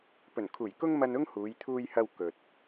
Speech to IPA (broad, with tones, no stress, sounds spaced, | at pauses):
p ɵ˨˩ n kʰ uː˨˩ j k ʊ˥ ŋ m ɐ˧ n ʊ˥ ŋ h uː˨˧ j t̪ʰ uː˧ j h ɐ˧ w k ɵ˨ t̚